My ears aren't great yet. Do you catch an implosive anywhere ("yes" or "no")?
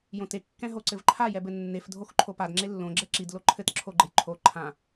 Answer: no